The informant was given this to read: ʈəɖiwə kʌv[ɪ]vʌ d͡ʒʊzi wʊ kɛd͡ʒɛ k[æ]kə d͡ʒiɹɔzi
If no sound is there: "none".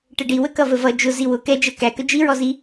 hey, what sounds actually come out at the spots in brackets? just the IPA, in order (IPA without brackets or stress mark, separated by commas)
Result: ə, æ